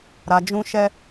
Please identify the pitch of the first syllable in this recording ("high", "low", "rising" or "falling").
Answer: low